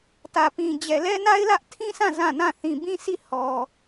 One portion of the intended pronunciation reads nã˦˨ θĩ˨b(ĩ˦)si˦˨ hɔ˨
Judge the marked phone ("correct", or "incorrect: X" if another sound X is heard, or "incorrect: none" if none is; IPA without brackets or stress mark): correct